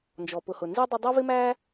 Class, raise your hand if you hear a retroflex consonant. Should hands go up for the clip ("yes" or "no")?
no